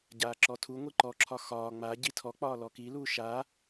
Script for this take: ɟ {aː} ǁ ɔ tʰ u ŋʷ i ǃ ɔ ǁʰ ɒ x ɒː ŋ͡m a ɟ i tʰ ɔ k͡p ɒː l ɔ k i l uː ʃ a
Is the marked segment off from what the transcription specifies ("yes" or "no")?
no